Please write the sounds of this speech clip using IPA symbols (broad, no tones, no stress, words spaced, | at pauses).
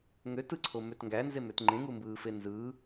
ŋø tɯǀʰomøt ŋɡænzemøt ŋ͡ǃẽŋumbɯːfe nzɯː